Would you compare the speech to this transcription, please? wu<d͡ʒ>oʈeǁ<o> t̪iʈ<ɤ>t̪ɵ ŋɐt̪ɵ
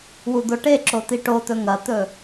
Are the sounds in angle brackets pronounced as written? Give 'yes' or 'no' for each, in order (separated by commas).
no, yes, no